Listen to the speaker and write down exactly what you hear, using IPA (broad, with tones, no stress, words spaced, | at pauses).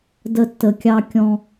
də˧tːə˨kʲɑ˧ kʲɔ̃˧